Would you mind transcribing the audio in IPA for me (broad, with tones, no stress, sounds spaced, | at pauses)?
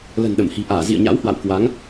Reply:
l ə̤˨˩ n ɗ ə˧˩ m h i̤˨˩ ʔ aː˧˩ z ḭ˧˨ ə̯ ɲ a̰˧˥ w h w a̰˧˨ w k w a˨˦ ŋ